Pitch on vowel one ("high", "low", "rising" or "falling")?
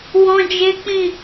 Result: high